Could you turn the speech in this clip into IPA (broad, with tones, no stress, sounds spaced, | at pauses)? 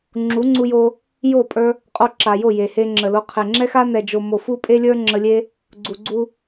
ŋ͡ǁ u˨˦ ŋ͡ǀ u˧ j o˧ | j o˦˨ pʼ ə˞˧ | qʼ o˧ ǁ a˨ j o˦˨ j e˨ h e˧ ŋ͡ǁ ə˨ l o˧ qʰ e˨ ŋ͡ǁ ɛ˦ x a˦ n ɛ˨ d͡ʒ o˨ m o˨ f u˦ pʼ e˦ lʲ ə˞˦ ŋ͡ǁ ə˧ lʲ e˦ | ɡ͡ǀ u˨ ɡ͡ǀ u˧